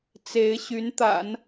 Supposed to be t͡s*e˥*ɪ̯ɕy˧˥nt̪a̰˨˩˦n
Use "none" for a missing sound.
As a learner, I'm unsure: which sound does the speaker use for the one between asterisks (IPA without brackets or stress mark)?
e˧˥